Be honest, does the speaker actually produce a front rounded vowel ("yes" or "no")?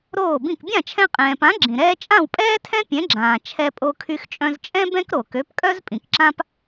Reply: yes